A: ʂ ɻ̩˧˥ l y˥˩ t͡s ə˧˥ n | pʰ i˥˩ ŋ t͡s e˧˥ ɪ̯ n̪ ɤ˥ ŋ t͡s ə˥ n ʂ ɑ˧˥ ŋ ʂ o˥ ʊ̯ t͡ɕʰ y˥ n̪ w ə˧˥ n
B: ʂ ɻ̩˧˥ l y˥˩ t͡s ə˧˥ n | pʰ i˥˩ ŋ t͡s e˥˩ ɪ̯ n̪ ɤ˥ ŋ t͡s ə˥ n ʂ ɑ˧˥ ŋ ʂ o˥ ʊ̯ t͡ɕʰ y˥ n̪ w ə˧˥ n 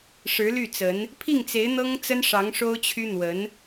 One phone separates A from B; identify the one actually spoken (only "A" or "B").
A